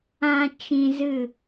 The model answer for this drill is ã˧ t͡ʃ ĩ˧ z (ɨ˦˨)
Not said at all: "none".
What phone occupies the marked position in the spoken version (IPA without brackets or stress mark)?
ɨ˦˨